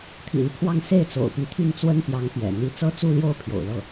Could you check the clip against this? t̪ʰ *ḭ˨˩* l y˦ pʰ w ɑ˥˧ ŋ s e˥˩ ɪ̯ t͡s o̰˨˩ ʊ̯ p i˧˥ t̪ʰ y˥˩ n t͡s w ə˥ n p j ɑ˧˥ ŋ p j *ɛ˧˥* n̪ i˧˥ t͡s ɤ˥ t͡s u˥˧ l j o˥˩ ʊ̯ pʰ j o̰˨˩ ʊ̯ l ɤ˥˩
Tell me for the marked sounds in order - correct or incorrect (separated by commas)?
correct, incorrect